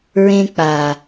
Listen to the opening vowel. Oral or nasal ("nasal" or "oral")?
nasal